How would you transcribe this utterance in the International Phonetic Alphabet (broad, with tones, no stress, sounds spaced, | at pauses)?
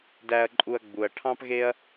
d æ˧ ɐ̯ ǃʼ u˧ ɐ̯ ɡ͡b u˧ ɐ̯ ʈʰ ɑ̃˥ p ɣ e˥ ɐ̯